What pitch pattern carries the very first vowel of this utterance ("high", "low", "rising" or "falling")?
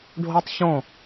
high